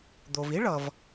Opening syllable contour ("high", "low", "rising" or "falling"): low